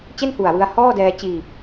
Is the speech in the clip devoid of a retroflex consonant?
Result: yes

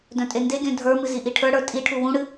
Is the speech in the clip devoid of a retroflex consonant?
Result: no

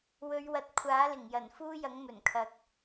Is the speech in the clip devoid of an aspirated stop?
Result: no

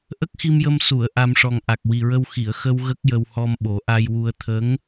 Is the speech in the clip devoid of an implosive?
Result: no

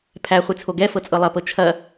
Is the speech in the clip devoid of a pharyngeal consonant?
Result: yes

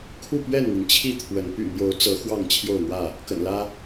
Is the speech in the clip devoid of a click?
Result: yes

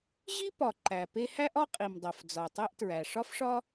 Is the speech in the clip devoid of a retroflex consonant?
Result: no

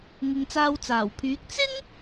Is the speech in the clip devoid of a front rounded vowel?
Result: no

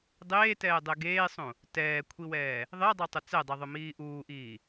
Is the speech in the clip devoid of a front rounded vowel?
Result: yes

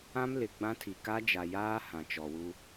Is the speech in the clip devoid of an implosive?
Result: yes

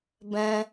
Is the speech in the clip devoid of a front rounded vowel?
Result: yes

